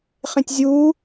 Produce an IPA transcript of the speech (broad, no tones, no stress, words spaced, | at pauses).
χẽtʲzʲuː